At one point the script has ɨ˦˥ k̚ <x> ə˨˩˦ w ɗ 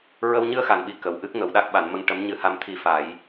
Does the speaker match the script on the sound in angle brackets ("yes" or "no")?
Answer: no